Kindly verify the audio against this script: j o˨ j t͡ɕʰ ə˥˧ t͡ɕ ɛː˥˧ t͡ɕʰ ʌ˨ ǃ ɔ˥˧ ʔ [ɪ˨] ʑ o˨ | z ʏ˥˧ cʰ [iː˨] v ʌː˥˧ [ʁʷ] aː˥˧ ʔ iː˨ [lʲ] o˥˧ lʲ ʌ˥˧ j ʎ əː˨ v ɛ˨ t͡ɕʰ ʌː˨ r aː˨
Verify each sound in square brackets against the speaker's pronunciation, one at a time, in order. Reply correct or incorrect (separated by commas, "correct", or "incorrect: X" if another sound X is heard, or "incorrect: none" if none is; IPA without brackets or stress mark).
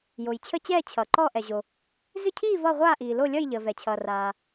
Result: incorrect: ɛ˨, incorrect: iː˥˧, correct, incorrect: l